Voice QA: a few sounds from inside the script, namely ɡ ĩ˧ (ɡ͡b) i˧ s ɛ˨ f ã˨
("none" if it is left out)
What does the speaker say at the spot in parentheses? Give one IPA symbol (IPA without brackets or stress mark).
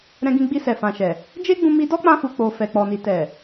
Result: ɡ͡b